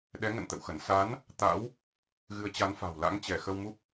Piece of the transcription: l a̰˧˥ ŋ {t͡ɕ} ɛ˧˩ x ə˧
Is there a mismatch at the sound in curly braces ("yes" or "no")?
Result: no